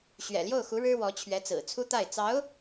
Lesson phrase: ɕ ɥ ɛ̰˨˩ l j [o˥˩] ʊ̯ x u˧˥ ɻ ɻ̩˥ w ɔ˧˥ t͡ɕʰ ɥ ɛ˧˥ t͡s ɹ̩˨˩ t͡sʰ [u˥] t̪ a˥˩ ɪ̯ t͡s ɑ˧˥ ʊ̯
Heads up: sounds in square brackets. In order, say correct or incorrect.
correct, correct

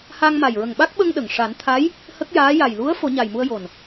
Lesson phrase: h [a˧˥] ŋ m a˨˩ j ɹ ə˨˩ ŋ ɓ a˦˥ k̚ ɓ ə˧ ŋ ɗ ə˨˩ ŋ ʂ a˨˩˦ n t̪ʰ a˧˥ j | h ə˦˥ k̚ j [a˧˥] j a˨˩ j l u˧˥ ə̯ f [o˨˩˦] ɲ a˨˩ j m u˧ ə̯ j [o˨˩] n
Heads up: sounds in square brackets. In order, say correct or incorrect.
incorrect, incorrect, correct, correct

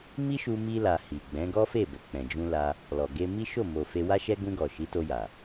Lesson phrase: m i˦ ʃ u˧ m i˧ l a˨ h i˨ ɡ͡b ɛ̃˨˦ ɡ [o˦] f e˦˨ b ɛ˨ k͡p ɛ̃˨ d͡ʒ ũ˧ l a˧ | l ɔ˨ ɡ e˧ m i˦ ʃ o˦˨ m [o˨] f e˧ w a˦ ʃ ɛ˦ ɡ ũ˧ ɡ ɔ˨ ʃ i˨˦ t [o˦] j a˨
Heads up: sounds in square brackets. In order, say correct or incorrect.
incorrect, correct, incorrect

